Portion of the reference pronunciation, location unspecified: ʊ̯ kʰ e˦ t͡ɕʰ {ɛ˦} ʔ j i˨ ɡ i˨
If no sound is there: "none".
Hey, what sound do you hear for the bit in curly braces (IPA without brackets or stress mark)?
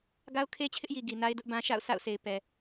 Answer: ɪ˦